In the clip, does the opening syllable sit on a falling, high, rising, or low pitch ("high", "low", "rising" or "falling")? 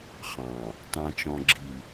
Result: low